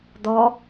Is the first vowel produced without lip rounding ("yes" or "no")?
no